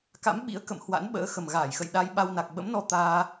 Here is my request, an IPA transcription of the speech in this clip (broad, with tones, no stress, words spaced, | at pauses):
ka̰˧˥mɓḭ˧˥ə̯kə̰˧˨m hwa̰˧˥nɓə̰ː˧˥ xə˨˩mɣaː˧˩jxə̰˧˨j ɗa˧jɓa˧wna˨˩k̚ ɓə̰˧˥mnɔ˧ t̪aː˧